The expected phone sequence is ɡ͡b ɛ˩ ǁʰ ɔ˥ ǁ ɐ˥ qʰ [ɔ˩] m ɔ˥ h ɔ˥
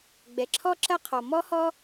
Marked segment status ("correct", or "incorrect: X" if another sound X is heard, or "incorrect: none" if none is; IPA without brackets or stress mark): correct